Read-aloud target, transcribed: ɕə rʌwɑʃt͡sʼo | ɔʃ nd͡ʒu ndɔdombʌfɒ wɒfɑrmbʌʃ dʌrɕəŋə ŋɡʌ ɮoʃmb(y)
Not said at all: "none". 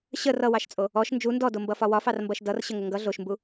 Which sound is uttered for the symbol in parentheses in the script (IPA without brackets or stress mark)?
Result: u